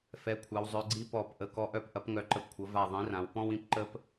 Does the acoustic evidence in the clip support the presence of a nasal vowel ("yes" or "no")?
yes